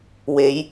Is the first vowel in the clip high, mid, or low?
mid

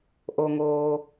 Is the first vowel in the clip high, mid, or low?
mid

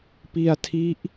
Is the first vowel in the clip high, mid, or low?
high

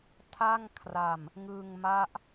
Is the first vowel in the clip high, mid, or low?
low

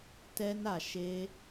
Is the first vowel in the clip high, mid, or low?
mid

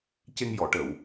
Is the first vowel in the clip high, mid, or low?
mid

